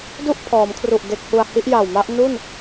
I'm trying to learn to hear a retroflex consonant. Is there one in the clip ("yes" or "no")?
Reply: no